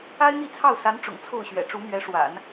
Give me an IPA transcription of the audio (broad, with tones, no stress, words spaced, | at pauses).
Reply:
a˥ɪ̯n̪i˥˧t͡sʰɑ˥˩ʊ̯sa˧˥n ʈ͡ʂʊ̰˨˩ŋt͡sʰo˥˩ʊ̯ɕɥɛ̰˨˩ ʈ͡ʂu˧˥mɥɛ˧˥ ʂwa̰˨˩˦n